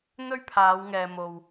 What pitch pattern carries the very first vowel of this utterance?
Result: high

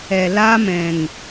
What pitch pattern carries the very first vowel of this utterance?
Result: low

